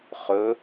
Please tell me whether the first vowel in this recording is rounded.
yes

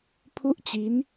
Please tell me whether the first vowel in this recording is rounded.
yes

